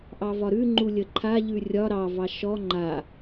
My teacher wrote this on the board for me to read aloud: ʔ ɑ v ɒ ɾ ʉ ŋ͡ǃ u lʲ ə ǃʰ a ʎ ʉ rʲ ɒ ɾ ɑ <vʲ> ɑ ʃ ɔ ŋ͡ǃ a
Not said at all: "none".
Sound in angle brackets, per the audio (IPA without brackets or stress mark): v